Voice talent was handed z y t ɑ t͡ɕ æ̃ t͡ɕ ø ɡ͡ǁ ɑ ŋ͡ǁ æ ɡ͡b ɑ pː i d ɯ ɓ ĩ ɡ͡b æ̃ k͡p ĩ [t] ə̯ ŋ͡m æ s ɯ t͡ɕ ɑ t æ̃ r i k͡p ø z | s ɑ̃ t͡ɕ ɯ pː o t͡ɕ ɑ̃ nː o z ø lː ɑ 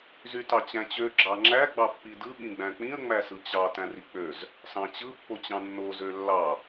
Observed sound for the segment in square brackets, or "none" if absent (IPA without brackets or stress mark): none